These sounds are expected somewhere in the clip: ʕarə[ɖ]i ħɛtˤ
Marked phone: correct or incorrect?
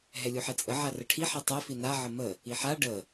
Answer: incorrect